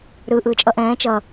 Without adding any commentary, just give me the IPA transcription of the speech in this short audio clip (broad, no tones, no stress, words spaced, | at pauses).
ɾɯ ʔɯːt͡ʃʼʌʔɛ̃ː t͡ʃʌ